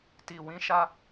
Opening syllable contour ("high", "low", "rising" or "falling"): low